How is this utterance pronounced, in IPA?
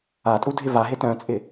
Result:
atʼu dʱɪvaɦe tœ̃t͡sʼɪ

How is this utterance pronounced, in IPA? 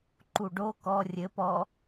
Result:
ǃuɖo kɔ rʲɘ pɔ

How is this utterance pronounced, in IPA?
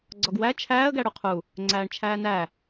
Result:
ɡ͡ǀɒɡwæ t͡ʃʰæːə̯ ɡæɽuqʰu | ŋ͡ǀæːɳt͡ʃʰæːnæ

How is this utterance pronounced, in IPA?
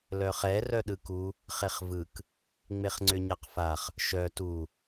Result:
lœχɛ rœɗɯku | χeχvɯk | ŋ͡meχŋ͡ǀʏɲaqfaχ | ʃœ tu

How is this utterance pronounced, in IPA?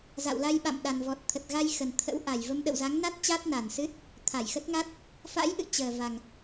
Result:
za̰˧˨wla˧jɓa̰˧˨m ɗa˨˩nvɔ˨˩t̚ t̪ʰə˨˩t̚ɣa˧jxə˨˩nt̪ʰə̰˧˥w ʔa˨˩j və˧mɗə̰˧˨wza˨˦ŋna˦˥t̚ t͡ɕaː˦˥t̚na˨˩nsɨ˦˥t̚ | t̪ʰa˧˩jxə˦˥t̚ŋa˦˥t̚ | fa̰˧˥jʔɨ̰˧˨ t͡ɕəː˨˩ va˨˩ŋ

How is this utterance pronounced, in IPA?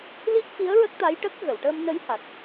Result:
li˦˥k̚fi˧˥ə̯ɹə˦˥k̚ t̪a˧˥jʈə˦˥k̚ ɣə˨˩˨wʈəː˧mnə˧˥jha˨˩t̚

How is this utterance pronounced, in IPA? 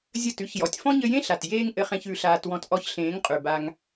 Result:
zʲɘ˦˨tʉ˦ç jɔ˨tʲfɔ̃˦ɲɘ˧jẽ˦ ɬa˨tjeː˦ŋʔɘ˧χẽ˧ç ʉ˧ɬaː˧t wɔ̃˧tʔɔ˧çɬẽː˨˦ŋ qʼʉ˨ba˧ŋ

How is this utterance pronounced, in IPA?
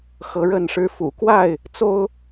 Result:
xɤ˨˦ɻə˥˨nʂɻ̩˦ fṵ˨˩kwa˥˨ɪ̯ | t͡so˦ʊ̯

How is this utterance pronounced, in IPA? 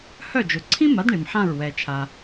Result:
hœ˥˩d͡ʒʊ˩ ǀʰĩ˥ma˩˥d ɳi˩mħã˥˩ɹ wɛ˩t͡ʃʰa˩

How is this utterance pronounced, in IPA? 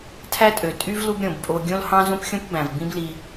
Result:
tʰæ˥tʼø˩ tʼy˥v lu˥bɾʲõ˩bpʼo˧ ɡʲõ˥l hɑ̃˥zõ˥pxʲõ˥p bæ̃˩v bĩ˥bli˧

